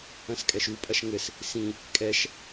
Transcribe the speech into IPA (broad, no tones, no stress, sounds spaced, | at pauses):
ɐ̃ s kʼ ɛ ʃ u pʼ ɐ ʃ ŋ ɘ s | s ĩ | kʼ ɛ ʃ